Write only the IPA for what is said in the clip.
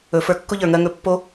ɵ˨fə˞˧ kːʊ˦ʎə˞˨ŋɜ˧ ŋɵ˧pːo˦

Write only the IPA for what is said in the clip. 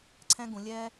ǀʰɛ̃˥ɡũ˧˩˧lʲɛ˥

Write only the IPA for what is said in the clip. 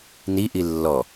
niʔi lːɔ

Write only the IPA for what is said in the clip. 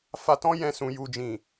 fa˧tɔ̃˦jɛ̃˧sũ˨ ju˨d͡ʒĩ˨

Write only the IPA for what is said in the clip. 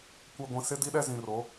kʷɛ˨ɡʷĩ˨ sɪ˦di˦ɗɛ˦ zĩ˨ro˨˦

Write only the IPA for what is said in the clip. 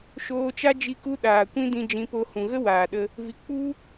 ʃoː˧t͡ʃa˦ d͡ʒi˦ku˦ ɗaː˨kʷĩ˦dĩ˧ d͡ʒĩ˧po˧ hũ˨ɣə˦waː˨ɗə˧ | vi˧ k͡pu˧

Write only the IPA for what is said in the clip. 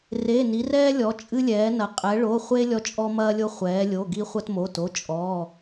re˩˧˩ ni˩˧rɛː˦lʲɔ˩˧ t͡ʃʼɨ˦lʲɛː˩˧nɐ˩˧ qʼɛ˩˧ ɭo˩˧˩χʷe˦ lʲɔ˦t͡ʃʼɔ˦mɐː˦lʲo˦ χʷɛː˩˧lʲo˩˧˩ ɡi˦ χʷɐ˦tmo˩˧˩to˩˧˩ t͡ʃʼɔː˩˧˩

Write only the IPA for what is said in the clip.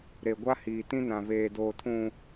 ɾe˨ɡʷa˦hiː˨ tĩ˦ nã˨veː˨doː˨ tʰũ˨

